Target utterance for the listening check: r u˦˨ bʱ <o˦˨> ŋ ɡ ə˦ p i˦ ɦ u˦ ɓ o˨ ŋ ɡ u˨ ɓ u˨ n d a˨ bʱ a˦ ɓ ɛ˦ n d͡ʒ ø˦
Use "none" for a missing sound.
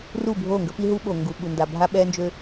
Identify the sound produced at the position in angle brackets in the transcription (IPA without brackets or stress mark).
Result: o˦˨